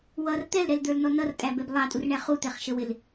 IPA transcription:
w ʌ r t̪ ɛ l ɾ ɛ l d̪ ə˞ l n ɔ n ʌ r tʼ æ b ɛ b lˠ ɑ tʼ u r ɳ æ χ u t̪ ɛ χ ʃ ə w ɪ l

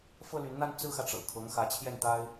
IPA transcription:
f ɤ˥ l y˧˥ n n̪ a˥ n t͡s ɹ̩˥ x ä˨ ʈ͡ʂ ɤ̰˨˩ kʰ ɤ˧˥ ŋ x ä˧˥ t͡ɕʰ j ɛ˥˩ n t̪ a˥ ɪ̯

